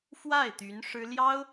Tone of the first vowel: falling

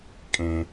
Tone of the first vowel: high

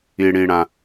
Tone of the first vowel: low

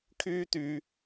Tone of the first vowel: high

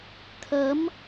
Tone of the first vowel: rising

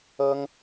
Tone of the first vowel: high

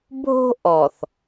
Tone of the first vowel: high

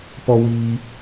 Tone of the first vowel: high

